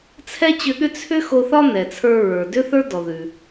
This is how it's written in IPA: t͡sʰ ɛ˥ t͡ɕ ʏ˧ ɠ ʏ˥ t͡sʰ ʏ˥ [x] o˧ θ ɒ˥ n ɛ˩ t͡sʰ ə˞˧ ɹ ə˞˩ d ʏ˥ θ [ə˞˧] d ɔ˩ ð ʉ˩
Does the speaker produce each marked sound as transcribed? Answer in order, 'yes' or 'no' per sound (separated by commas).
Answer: yes, no